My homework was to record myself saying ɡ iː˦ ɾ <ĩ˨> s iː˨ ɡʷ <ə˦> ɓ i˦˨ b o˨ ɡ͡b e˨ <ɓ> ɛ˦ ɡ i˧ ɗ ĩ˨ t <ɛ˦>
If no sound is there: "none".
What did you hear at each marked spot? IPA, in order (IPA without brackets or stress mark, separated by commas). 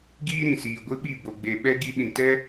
ĩ˨, ɨ˦, ɓ, ɛ˦